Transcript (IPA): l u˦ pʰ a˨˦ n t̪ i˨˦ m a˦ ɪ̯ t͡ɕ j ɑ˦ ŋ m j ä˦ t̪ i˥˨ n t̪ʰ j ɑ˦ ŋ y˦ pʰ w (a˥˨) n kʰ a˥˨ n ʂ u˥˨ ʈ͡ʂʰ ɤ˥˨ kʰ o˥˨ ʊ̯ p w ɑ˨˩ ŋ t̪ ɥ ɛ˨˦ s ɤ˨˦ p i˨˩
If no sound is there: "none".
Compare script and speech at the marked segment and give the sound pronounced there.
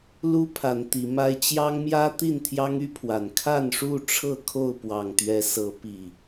a˨˩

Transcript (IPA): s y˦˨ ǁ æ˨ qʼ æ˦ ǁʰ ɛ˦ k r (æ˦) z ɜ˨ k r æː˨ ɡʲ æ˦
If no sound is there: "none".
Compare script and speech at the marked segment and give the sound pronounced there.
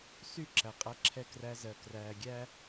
æ˦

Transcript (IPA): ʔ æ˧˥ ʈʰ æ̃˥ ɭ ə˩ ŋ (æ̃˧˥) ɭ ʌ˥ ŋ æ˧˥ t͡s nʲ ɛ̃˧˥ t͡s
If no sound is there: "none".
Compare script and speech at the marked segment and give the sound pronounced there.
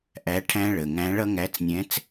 æ̃˧˥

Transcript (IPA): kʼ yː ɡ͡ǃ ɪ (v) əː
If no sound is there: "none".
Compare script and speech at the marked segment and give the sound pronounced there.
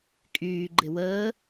w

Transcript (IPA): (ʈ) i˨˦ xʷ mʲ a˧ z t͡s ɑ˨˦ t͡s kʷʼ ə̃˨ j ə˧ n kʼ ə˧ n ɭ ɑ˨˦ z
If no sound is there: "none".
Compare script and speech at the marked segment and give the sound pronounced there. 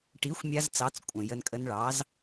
ʈ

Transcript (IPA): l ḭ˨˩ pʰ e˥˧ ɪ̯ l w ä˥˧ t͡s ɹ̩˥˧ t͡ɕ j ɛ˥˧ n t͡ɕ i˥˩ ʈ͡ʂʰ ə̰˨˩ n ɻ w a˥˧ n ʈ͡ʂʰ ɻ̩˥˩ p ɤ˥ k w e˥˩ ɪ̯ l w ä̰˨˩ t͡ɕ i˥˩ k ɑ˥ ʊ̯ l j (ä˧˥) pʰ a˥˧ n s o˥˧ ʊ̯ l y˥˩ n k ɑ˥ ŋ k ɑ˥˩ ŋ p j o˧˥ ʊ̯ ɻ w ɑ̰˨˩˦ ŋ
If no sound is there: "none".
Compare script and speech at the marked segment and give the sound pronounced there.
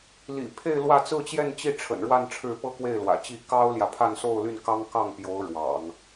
ä˨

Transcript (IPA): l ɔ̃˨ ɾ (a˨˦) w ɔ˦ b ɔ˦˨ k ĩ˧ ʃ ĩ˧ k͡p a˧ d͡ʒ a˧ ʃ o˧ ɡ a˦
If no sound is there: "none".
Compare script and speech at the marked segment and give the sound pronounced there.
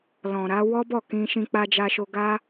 a˨˦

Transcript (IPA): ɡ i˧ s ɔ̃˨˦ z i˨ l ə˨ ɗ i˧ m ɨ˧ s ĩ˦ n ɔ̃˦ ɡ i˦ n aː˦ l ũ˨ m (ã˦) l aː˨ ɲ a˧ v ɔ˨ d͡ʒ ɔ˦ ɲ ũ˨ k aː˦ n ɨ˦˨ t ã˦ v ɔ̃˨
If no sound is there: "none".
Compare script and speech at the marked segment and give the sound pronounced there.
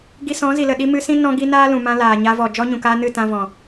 ã˧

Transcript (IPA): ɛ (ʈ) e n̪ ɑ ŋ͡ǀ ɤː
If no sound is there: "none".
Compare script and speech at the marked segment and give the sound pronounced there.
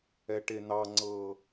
ʈ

